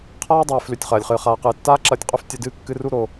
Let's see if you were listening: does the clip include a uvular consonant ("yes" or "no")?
yes